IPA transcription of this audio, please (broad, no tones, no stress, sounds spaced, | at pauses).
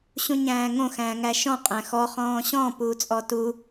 ɕ ũ ɲ æ̃ː ŋ õ x æ̃ː ŋ æ ʃ ɔ̃ qʼ æ̃ x ɔ χ ɔ̃ː ɕ ɔ̃ p uː t͡sʼ ɔ t u